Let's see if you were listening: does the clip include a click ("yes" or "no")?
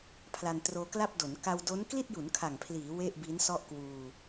no